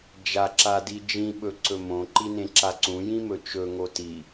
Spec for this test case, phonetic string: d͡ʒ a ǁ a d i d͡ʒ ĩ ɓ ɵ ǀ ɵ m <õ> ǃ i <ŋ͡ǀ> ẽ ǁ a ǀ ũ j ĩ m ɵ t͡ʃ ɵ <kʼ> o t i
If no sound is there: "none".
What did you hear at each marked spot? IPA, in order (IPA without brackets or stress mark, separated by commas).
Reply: õ, n, ŋ